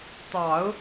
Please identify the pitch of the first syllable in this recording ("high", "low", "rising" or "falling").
low